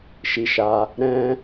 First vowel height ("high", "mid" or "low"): high